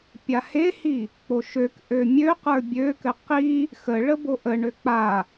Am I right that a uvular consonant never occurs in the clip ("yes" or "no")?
no